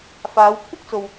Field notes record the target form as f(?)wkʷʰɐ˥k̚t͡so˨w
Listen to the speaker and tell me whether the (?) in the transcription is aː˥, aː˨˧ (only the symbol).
aː˨˧